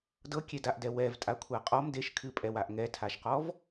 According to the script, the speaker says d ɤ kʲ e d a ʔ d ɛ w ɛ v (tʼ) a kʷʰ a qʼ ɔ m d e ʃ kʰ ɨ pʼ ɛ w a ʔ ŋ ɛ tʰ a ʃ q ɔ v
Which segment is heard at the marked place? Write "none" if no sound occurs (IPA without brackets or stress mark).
tʼ